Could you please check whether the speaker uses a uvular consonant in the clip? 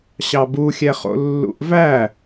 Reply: yes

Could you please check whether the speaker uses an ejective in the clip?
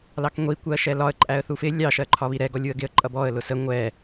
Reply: yes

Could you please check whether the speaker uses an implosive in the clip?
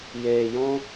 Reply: no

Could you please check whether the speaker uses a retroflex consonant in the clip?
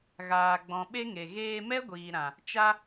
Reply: no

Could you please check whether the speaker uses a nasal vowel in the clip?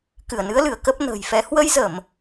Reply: no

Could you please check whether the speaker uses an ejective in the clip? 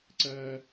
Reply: no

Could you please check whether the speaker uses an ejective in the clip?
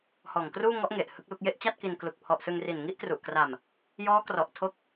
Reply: no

